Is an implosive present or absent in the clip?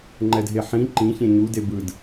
absent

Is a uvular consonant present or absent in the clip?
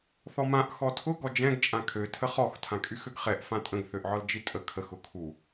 present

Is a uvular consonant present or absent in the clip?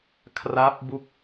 absent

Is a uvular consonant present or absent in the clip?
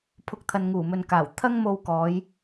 absent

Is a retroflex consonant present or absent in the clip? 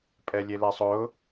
absent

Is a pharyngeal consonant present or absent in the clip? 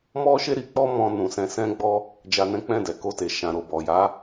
absent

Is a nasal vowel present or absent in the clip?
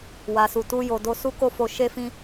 present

